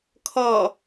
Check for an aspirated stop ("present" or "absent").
present